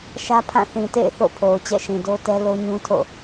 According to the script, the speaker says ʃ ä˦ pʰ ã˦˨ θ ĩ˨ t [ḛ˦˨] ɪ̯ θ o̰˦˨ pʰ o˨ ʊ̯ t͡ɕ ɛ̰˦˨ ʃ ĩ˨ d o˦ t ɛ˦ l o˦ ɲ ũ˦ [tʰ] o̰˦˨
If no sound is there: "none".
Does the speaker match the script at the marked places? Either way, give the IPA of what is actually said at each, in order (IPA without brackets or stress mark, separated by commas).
ḛ˦˨, tʰ